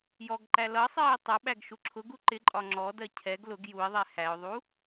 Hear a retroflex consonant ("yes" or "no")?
no